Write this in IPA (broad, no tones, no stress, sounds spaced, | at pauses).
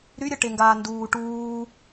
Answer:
ɾ y ɾʲ ə ʈ e ŋ ɡ aː n d uː ʈ uː